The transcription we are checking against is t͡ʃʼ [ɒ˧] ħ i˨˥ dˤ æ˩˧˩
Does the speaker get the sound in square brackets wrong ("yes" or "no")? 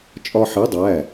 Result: no